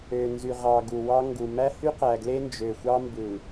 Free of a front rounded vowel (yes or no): no